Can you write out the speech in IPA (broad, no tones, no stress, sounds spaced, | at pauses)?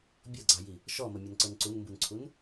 bʲ ɔ ɡ͡ǀ ɑ j i | ʃ ɔ m ə mʲ ʌ n ǀ ʊ n ǀ u n m b u n ǀʰ u n